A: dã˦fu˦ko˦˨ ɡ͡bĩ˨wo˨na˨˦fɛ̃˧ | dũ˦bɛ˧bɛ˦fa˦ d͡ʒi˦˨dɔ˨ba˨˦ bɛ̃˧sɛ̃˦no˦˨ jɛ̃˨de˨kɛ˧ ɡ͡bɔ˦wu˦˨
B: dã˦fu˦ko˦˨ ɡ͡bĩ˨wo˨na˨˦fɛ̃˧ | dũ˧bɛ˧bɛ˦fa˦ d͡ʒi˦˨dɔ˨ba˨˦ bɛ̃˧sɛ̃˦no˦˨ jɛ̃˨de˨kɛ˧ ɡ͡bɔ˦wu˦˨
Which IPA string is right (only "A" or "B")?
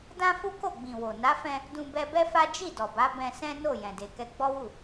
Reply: B